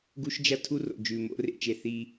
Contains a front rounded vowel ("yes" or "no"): no